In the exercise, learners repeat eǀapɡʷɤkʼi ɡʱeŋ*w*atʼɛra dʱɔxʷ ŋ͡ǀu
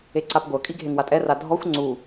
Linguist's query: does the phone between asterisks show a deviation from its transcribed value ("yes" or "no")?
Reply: no